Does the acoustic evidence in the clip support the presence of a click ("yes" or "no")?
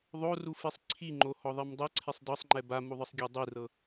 yes